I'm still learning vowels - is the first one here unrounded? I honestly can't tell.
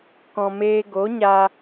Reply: no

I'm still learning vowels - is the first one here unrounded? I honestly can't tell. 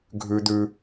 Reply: no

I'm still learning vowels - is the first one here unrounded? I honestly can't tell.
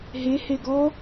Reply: yes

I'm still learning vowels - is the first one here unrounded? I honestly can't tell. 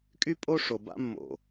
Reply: no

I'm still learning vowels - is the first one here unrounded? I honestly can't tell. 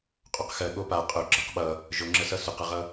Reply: no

